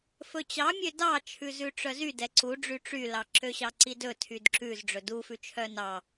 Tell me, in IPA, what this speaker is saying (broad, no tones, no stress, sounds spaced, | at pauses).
f ɵ t͡ɕ ɑ mʲ ø d ɑ t͡ʃʰ ʉ z ʉ ʈ͡ʂ œ z y d ɛ ǀ u ɖ͡ʐ y ʈ͡ʂ y l ɑ ǁ ø ɕ ɑ ǀ i d ɵ tʰ y d ǁ ʉ z ɖ͡ʐ ɵ d u f ʉ t͡ʃʰ œ n ɑ